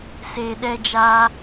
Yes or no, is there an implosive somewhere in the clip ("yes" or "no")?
yes